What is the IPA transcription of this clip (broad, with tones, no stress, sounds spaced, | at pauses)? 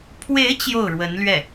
pʰ w e˧˥ ɪ̯ t͡ɕ j o˥˩ ʊ̯ ɻ w ə˧˥ n l ɥ ɛ˥˩